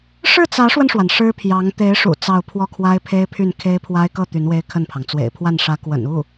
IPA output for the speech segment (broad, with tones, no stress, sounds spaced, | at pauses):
ʂ ɻ̩˥˩ t͡s ä˧˥ ʂ w ə˧ n ʂ w a˩ n ʂ ɻ̩˥ pʰ j ɑ˧˥ ŋ t̪ e˧˥ ɪ̯ ʂ ṵ˨˩ t͡s ɑ˥˧ ʊ̯ pʰ w ɔ˥˩ kʰ w a˥ ɪ̯ pʰ e˥ ɪ̯ pʰ y˥˩ n kʰ e˥ ɪ̯ pʰ w a˥ ɪ̯ k ɤ˥˩ t̪ y˧˥ n w e˥ ɪ̯ kʰ ə˥˩ n pʰ ɑ˩ ŋ t͡s w ḛ˨˩ ɪ̯ pʰ w a˥˩ n ʂ ä˧˥ k w ə̰˨˩ n u˥˩